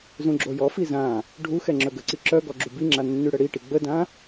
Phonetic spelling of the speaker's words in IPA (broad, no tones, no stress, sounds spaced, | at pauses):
z ũ ɡ͡ǁ o j ɔ f i z ã | ɖʱ u x ɛ ŋ͡ǁ œ ɡ ə ǀ i ǁ œ ɡ ɔ ɡ͡ǁ u b i ŋ͡ǁ a nː y ɽ ə ɽ i ʈ i ɡ͡b ə d ã